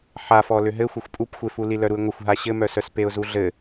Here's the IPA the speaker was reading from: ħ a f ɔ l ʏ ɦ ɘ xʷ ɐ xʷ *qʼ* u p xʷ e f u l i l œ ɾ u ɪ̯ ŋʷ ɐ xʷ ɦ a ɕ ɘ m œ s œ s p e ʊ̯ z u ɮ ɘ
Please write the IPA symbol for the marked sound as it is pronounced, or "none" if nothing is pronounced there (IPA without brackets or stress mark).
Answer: pʼ